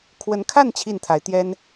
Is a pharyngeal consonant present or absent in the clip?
absent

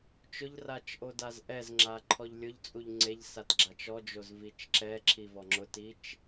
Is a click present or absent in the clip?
present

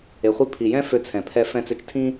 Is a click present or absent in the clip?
absent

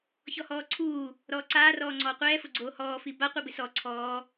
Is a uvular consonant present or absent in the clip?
present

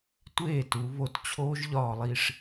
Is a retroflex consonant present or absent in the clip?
present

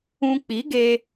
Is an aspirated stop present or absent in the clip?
absent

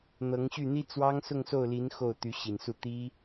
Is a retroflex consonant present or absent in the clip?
absent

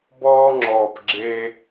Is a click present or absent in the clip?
present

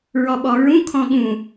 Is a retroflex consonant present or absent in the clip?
absent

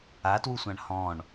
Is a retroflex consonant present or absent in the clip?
present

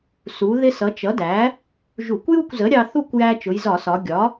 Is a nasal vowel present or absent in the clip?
absent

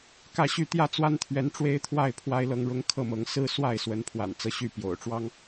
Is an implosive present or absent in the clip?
absent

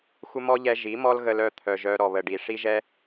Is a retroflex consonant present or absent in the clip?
present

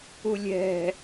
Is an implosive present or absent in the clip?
absent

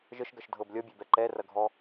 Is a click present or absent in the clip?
present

